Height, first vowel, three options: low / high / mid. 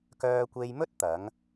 mid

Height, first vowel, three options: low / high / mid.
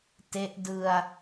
mid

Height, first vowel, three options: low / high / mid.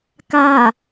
low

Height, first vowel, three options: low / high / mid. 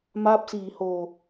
low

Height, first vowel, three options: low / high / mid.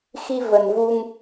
high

